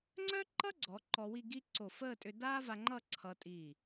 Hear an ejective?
yes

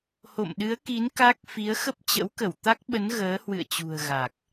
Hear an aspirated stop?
no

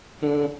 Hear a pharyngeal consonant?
no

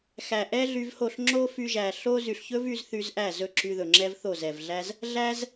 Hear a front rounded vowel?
yes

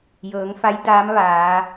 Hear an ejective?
no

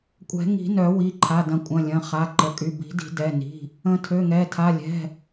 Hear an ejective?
yes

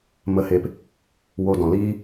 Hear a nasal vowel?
yes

